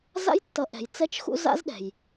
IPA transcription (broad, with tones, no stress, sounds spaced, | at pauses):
z a̰˦ j tː ʌ˨˦ ʔ ɛ̤˨ j t͡s ɛ˦ t͡ʃ x ṵ˦ z a̰˦ z ɗ ɛ̤˨ j